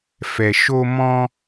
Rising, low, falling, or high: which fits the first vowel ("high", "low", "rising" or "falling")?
low